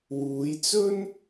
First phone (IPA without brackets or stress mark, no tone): w